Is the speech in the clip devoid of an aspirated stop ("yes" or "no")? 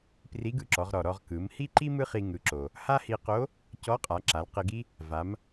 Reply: yes